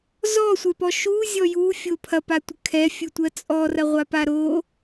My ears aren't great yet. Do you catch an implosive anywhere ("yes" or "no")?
no